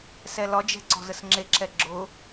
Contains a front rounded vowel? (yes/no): no